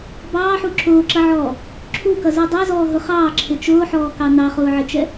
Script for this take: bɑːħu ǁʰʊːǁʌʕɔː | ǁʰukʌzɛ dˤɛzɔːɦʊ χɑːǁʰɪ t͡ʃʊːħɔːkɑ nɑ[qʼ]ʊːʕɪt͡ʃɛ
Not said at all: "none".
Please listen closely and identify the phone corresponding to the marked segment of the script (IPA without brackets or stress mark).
χ